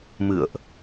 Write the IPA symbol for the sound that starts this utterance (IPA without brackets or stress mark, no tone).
m